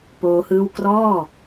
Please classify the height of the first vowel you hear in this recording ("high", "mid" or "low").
mid